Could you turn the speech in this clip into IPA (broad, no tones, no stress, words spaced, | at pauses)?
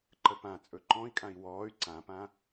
ǃəpãt͡sʼɵ ǃɔ̃i̯kʼãi̯ wɔːy̯ ǀãpã